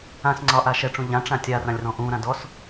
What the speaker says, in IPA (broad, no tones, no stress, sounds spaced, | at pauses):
ã s ŋ͡ǀ ɒ ʔ a ʃ ɛ ʈ͡ʂ ũ ʎ ã ʈ͡ʂ ã tʲ a r ã lʲ r ɔ̃ ʔ ũ ɾ ã d ɔ s